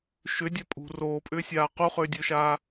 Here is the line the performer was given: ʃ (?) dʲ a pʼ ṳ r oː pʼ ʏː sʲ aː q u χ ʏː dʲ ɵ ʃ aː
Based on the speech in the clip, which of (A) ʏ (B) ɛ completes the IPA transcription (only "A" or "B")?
A